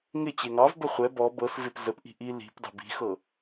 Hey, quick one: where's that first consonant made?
velum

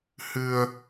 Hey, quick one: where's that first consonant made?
throat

